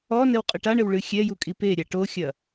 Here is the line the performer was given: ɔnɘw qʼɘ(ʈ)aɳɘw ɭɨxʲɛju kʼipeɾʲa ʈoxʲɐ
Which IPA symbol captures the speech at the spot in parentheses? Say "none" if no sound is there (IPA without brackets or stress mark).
ʈ